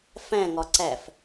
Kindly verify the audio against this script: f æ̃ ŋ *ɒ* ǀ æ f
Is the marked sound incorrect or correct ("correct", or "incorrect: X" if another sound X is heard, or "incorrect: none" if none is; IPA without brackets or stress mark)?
correct